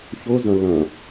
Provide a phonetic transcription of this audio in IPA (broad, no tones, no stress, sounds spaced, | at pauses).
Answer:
ç ʊ z ɐ̃ l ɐ̃